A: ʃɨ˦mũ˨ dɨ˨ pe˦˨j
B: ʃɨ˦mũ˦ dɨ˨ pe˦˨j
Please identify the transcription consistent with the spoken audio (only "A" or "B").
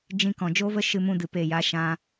B